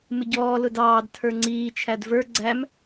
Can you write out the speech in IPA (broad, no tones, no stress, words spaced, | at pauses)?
mɪɟɔː lʊdɑːd tʰə˞ŋ͡ǀiː t͡ʃʰædvə˞ ɡ͡ǀæm